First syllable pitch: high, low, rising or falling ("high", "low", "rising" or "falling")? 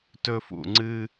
high